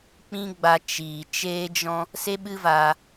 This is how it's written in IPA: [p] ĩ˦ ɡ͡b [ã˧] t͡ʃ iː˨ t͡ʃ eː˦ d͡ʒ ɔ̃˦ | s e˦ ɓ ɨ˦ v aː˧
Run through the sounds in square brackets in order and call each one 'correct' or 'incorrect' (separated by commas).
incorrect, incorrect